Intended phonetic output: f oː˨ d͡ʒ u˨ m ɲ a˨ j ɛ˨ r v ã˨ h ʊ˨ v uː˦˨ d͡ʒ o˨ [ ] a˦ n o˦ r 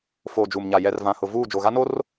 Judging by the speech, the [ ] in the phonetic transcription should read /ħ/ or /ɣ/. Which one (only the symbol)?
ɣ